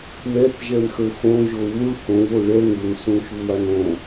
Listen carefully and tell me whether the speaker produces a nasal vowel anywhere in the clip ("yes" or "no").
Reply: yes